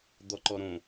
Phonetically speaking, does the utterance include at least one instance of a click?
yes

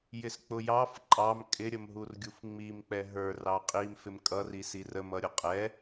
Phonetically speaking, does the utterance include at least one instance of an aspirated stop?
no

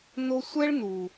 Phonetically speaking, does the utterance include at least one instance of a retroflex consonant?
yes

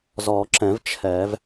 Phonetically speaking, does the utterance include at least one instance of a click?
yes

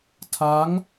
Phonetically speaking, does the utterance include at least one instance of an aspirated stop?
yes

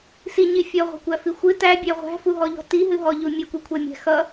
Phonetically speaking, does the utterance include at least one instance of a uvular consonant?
yes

